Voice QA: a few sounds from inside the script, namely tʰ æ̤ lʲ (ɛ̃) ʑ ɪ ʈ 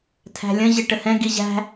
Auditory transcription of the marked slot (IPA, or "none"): ə̃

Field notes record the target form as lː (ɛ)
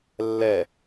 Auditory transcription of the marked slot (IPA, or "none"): ɛ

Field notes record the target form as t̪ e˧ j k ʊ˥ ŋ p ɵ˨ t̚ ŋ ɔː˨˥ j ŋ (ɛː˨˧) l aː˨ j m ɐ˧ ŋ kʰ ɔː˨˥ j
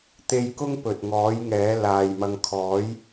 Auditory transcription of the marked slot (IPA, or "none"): ɛː˨˥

